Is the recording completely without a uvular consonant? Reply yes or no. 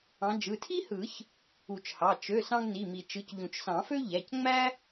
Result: yes